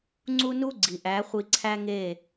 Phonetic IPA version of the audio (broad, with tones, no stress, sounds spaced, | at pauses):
ŋ͡ǀ u˦ n u˦ ɡ͡ǀ i˨ ʔ æ˨˦ χʷ i˧ ǀʰ æ˦ ŋ e˦˨